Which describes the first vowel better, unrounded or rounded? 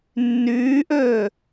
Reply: rounded